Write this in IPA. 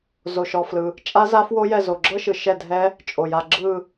zo˩ʃɔ˩flɯ˩ | t͡ʃʼa˦˥za˦˥fwo˦˥jɛ˦˨ zo˩ɡ͡ǁɤ˦˥ʃɯ˩ ʃɛ˦˨dʱɛ˦˥ | t͡ʃʼo˩ja˦˨ ɡ͡ǁɯ˦˨

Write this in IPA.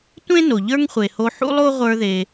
tʷẽ˥ no˩ʎə˞˥ŋχʷe˩ho˧ ħṵ˥lˠo˥ʁʷə˞˧ðe˩

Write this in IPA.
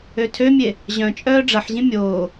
øtʰømʲe | ʑœ̃t͡ʃʼœː ɖ͡ʐɐħʑĩ mʲoː

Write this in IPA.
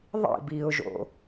ðˤḭbiːʊ̯ʒo̰

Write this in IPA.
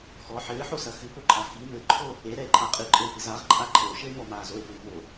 xɔ ħɘːħosɐ xɨpoǃʼa xi mɘǃʰo | eɾɛe̯ǃʼa qʼɨǃʼɘe̯pɨz aʁǃʼa ǃʰɘo̯ʃɘe̯mɔmaːz oe̯puːmoː

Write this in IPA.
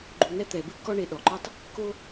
ɡ͡ǃu˧nɛ˦ t̪ɛ˨bɨ˦ kɔ˦ɳe˧ ɗɔ˨ǃɔ˦tˤ | ko˦

